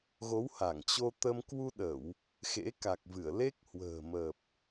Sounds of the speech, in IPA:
ɣo˨˦wha˧˩ŋ t͡ɕo˧t̪ə˧m kwu˧ɗə˧˩˨w | xḛ˧˥ka˨˩k̚vɨ˧˩ə̯ le˦˥k̚hwə̤ː˨˩mə˨˩p̚

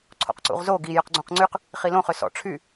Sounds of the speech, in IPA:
ǀʰo̰qǀṵʁzo ɡi jœqɡ͡ǀũqŋ͡ǀyq | χilõ χøsɔ̰ ʈ͡ʂʰy

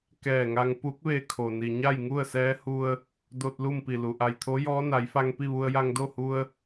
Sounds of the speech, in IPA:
kɛː˧˩ŋa˧ŋ pu˧˥k̚ʋe˧ kʰo˩ni˩ ɲa˥˨jŋu˥˨ə̯sɛː˧˥hu˧ə̯ | do˧t̚ lu˥˨mpi˧˩lu˩ ʔa˧˩jt̪ʰo˧˥jɔː˧˥ na˩˧jfa˧ŋpi˥˨ ʋu˧ə̯ja˧ŋdo˥˨hu˧ə̯

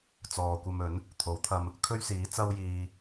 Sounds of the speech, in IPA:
t͡sɔː˨kʷɐ˧mɵ˨˥n | t̪ʰo˨˥wt̪ʰɐ˧m | kʰɵ˥ɥsiː˨˥ t͡sɐ˧wjiː˨

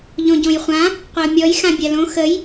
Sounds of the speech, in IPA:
ʎõɟõjχʷã | qʷəʊ̯mʲɔj xãbʲalõ xəj

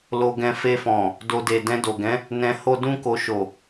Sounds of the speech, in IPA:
lo˧ɡɛ̃˧ fe˧fɔ̃˨ | do˧ de˨ dɛ̃˧do˨ɡɛ̃˨˦ | nɛ̃˧ho˦ dũ˦ko˧ ʃo˨

